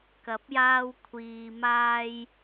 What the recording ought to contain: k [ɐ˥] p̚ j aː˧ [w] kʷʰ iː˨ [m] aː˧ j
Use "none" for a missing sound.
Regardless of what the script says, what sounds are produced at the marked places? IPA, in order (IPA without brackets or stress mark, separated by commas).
ɐ˨˥, w, m